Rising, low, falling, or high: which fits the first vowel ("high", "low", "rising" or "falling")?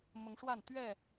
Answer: rising